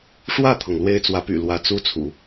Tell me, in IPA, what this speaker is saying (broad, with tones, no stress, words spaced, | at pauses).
ʂwä˥˩t̪ʰɤ˩ŋ lwe˥ɪ̯t͡swä˧˥py̰˨˩ lwä˧˥t͡su˥t͡sʰṵ˨˩˦